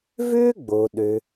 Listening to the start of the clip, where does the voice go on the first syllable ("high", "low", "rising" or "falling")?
high